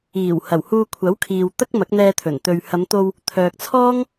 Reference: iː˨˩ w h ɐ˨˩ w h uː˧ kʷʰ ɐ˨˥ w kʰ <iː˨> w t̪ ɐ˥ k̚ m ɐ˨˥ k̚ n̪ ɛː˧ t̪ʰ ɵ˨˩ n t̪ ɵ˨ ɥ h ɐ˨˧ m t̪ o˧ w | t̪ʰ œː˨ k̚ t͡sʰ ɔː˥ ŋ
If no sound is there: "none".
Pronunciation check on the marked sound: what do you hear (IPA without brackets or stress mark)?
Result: iː˨